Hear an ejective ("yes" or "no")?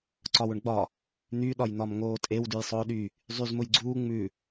yes